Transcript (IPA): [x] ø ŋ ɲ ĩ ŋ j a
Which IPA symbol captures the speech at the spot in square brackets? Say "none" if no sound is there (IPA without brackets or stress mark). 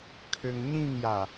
kʰ